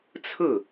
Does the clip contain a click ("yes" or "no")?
no